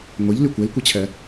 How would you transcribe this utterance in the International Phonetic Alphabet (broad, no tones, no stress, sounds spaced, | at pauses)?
ŋʷ e ʎ l y kʷ e l kʷ e t͡ɕʰ ɛ